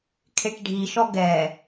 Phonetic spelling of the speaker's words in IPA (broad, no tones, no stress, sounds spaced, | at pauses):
kʰ e ʈ ɖʱ i ʃ ɔ ɡ ɛ